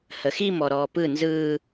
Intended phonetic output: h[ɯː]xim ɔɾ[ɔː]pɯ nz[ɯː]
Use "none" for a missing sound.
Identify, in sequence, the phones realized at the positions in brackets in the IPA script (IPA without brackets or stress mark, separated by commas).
əː, ɔː, ɯː